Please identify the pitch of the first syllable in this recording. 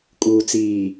low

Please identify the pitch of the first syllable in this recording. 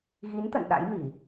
rising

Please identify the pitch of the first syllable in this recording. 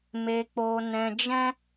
low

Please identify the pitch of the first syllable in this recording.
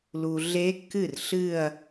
low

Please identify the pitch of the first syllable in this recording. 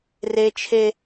high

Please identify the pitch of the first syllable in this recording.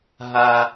high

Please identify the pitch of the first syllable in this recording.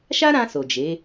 high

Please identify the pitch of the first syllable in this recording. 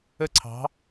falling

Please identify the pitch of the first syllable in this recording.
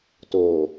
low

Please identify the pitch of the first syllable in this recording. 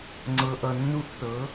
low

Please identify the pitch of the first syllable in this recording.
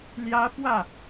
high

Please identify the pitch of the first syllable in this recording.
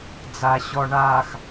low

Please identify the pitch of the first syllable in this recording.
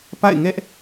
falling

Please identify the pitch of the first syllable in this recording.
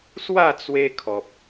falling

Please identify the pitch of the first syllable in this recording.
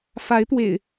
rising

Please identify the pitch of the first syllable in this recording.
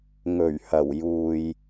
low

